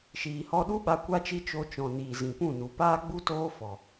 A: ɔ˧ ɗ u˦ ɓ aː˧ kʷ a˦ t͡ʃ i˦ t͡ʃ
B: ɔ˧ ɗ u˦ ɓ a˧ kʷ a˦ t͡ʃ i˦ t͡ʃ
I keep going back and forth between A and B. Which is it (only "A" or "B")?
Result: B